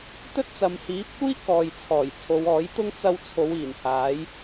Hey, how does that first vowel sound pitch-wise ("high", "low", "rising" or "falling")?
high